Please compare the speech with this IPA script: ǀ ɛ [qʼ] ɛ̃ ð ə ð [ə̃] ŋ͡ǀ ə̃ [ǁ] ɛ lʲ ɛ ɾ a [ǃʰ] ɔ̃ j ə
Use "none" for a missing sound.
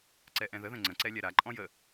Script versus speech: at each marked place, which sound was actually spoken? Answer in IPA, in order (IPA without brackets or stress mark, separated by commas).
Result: ʔ, ə̃, ǀ, ǃʼ